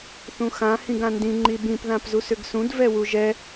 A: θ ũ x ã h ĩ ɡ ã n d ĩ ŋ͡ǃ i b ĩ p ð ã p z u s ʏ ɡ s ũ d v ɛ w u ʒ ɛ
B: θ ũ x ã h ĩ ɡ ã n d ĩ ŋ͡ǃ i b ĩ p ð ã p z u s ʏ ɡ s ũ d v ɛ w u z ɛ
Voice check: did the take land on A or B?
A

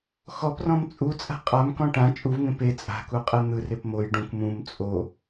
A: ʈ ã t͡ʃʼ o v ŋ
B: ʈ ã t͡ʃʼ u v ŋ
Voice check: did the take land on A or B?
B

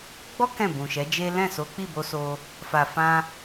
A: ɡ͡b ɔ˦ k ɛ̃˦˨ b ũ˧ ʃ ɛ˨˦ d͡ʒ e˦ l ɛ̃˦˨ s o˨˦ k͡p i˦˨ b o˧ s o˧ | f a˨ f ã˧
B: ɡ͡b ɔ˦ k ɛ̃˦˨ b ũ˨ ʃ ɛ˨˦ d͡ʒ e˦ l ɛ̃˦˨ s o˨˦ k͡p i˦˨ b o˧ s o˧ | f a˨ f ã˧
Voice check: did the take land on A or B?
B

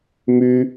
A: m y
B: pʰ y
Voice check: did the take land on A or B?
A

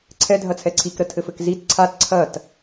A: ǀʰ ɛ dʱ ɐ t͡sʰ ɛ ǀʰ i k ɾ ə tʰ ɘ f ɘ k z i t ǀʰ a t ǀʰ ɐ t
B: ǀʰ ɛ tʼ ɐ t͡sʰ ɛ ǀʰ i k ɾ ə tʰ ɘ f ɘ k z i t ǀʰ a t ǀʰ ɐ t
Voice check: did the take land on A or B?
A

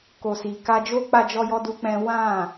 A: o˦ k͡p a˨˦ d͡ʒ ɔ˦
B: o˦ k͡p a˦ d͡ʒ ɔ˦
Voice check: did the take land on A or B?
B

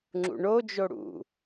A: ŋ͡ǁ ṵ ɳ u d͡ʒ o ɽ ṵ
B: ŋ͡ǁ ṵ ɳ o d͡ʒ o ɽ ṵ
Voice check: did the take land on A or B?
B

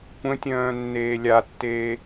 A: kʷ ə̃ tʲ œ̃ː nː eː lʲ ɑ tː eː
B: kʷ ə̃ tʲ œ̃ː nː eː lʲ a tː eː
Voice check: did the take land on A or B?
B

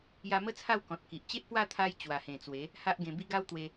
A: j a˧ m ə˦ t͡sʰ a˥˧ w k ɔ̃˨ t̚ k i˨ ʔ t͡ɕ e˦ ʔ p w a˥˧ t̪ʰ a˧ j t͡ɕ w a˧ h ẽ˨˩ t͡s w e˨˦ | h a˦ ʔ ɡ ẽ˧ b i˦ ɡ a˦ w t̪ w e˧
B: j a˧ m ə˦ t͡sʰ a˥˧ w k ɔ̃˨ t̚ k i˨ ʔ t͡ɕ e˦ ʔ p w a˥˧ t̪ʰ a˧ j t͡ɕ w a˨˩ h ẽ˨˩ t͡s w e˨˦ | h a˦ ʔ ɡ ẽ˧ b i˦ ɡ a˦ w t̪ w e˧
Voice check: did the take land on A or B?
B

